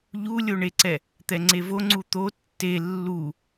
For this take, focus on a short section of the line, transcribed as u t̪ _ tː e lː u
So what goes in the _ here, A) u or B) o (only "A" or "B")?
B